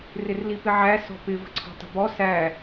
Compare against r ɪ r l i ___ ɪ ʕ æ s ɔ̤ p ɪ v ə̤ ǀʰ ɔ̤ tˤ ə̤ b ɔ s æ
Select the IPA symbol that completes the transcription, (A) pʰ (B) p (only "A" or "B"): B